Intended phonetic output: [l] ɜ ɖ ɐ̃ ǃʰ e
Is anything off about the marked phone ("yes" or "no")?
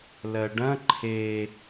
no